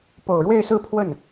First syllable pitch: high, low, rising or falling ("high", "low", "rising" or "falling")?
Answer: low